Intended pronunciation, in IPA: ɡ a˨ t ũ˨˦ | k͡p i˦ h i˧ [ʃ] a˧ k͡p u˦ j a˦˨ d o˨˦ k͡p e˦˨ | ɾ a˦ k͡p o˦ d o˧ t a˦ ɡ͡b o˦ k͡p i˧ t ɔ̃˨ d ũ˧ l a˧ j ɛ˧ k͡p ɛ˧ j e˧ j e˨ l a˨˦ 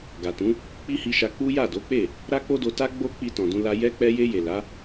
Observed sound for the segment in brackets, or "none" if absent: ʃ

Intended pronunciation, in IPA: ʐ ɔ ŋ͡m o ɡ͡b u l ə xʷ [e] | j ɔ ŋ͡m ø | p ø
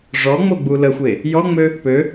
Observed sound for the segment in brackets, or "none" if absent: e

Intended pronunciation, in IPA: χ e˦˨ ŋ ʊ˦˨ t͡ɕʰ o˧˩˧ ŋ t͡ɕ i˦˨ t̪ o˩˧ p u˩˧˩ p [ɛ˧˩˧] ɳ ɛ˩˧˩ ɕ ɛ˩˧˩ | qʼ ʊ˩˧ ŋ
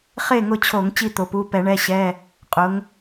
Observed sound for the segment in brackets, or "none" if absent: ɛ˧˩˧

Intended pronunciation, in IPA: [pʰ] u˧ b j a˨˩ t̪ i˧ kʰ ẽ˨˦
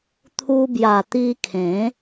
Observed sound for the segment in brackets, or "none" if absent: t̪ʰ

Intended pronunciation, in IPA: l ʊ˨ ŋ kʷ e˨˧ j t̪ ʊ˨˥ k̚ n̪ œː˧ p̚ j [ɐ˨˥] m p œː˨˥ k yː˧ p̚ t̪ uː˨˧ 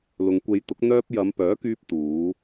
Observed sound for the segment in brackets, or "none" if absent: ɐ˨˧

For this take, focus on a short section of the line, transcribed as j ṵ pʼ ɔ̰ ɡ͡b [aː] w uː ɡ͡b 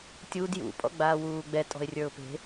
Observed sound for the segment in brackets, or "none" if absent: aː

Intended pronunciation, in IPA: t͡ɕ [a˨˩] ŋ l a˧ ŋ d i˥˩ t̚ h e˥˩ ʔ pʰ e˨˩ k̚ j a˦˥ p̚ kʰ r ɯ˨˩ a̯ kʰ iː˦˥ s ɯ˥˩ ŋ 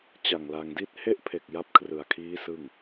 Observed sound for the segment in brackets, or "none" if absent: a˨˩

